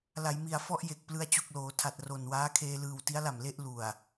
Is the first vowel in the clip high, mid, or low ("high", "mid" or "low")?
low